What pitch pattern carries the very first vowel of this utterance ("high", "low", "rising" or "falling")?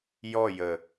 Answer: falling